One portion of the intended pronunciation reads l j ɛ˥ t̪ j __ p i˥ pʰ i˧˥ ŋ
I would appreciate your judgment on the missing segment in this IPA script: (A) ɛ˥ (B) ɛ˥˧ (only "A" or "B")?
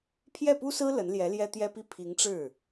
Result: A